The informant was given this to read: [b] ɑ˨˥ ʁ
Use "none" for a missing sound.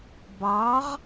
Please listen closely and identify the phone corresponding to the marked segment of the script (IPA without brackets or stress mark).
b